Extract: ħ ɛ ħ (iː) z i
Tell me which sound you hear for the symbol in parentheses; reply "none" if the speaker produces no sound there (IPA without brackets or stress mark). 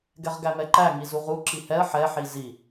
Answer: i